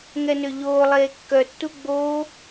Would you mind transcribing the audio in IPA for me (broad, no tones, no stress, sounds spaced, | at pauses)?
ŋ ɛ n ø ʎ oː lˠ eː kː œ tː u ɡ͡b oː